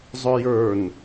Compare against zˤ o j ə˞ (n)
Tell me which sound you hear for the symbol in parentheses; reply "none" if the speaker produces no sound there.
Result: n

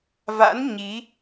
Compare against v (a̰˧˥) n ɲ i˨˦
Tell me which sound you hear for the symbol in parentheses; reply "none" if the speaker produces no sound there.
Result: a̰˧˥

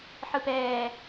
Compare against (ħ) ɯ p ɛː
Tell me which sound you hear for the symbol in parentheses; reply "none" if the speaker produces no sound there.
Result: ħ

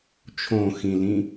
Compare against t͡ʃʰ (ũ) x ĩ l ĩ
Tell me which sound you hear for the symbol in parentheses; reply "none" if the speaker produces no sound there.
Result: õ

